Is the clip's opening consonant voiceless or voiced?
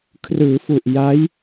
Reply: voiceless